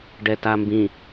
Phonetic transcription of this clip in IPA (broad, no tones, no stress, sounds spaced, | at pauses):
ɖ ɛ t a m b ĩ